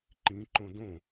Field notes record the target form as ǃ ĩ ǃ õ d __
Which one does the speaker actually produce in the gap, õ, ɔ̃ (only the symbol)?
õ